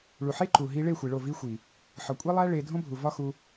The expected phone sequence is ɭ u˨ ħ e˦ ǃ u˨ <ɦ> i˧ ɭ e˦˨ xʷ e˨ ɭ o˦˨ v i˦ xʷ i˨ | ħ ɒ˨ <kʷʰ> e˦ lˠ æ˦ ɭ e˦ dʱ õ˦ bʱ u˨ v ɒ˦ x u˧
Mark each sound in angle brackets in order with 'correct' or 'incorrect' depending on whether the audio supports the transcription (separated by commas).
correct, incorrect